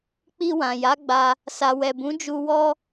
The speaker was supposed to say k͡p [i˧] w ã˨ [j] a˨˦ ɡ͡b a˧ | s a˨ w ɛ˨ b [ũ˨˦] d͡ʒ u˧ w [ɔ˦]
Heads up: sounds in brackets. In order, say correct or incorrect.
correct, correct, correct, incorrect: ɔ˧

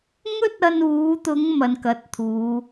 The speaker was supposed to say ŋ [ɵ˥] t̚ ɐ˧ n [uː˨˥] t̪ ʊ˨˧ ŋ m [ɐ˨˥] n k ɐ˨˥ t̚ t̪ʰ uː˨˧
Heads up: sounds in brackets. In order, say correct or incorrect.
correct, incorrect: uː˨˧, incorrect: ɐ˨

